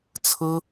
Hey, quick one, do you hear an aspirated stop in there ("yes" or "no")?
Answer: yes